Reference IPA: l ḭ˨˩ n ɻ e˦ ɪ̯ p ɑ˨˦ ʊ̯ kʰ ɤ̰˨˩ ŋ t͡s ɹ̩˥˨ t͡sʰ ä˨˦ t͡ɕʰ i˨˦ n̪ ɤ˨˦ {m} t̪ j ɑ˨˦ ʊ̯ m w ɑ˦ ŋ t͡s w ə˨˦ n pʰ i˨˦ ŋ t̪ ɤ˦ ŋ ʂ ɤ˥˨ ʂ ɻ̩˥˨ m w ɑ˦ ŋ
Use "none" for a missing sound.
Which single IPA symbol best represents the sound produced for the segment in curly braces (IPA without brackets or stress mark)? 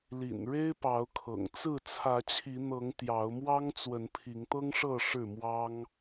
ŋ